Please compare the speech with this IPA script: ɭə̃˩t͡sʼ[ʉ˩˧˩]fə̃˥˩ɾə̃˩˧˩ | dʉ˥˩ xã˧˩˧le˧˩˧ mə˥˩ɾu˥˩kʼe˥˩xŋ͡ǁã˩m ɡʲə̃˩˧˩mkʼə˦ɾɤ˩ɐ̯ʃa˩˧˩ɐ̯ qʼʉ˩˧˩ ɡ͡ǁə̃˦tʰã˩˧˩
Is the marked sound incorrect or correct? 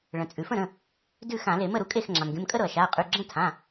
incorrect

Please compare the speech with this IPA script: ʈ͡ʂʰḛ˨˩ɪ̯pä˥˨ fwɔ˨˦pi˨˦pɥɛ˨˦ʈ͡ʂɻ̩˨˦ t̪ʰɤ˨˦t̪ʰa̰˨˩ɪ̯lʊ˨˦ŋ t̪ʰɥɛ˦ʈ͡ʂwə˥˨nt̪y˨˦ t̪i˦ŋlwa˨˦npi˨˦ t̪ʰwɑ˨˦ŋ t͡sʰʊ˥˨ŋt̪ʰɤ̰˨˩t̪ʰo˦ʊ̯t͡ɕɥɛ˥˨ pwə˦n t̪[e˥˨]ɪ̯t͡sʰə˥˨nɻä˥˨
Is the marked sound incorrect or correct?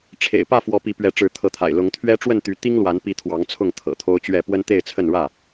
correct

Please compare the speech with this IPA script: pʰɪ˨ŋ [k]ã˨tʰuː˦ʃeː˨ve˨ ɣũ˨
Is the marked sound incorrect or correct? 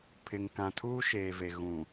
correct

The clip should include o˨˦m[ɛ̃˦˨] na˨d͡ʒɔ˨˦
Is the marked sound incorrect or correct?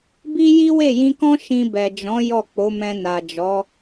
incorrect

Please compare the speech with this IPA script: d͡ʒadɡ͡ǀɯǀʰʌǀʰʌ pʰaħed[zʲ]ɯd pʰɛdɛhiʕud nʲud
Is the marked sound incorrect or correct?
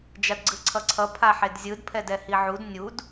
correct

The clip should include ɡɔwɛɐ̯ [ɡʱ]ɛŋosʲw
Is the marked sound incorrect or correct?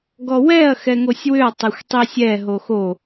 incorrect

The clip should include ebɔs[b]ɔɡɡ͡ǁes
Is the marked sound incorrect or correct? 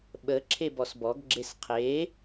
correct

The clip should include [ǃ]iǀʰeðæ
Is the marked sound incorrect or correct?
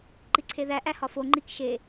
correct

